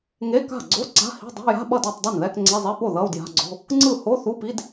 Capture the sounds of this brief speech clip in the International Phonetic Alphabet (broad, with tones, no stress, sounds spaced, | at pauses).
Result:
ŋ e˧˥˧ k a̤˥˩ ɡ͡ǀ o˧˥˧ ǀ a̤˧˥˧ h i̤˧˥˧ dˤ o̤˧˥˧ j a̤˧˥˧ ɓ ʌ˥˩ d o˥˩ tˤ dˤ ɛ˥˩ n ð ɛ˧˥˧ k ŋ͡ǀ e˧˥˧ zˤ e˧˥˧ p o˥˩ ð ʌ˧˥˧ u̯ d j a̤˧˥˧ ɡ͡ǀ o̤˧˥˧ | ŋ͡ǀ ɯ˥˩ h o˧˥˧ θ u˧˥˧ p i˧˥˧ d